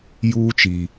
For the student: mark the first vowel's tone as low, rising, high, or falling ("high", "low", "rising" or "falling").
high